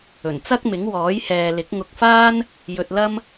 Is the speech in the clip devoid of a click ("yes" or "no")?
yes